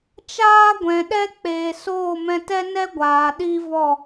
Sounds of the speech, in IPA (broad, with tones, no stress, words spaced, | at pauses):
t͡ʃaː˦ɡʷɛ̃˨ɗɛ˦ k͡peː˨soː˦˨mɛ̃˧ tɛ˦nɛ˦ ɡʷaː˨ɗi˦vɔ˦˨